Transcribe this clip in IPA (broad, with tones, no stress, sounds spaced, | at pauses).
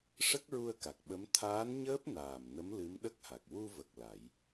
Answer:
ʂ ə˦˥ k̚ ɹ u˧ ə̯ k a˨˩ k̚ ɓ ə˧˥ m t̪ʰ aː˧˥ n ɲ əː˦˥ p̚ n aː˨˩ m n ə˧˥ m l ɨ˧˥ m ɗ ə˦˥ k̚ h a˨˩ k̚ w u˧ v ə˨˩ k̚ l a˨˩˦ j